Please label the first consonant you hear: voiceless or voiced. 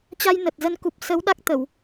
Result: voiceless